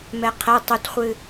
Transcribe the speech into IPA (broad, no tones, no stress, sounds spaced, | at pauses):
m ɛ qʰ ɛ tˤ u t χʷ ɨ